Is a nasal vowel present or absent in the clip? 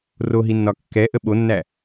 absent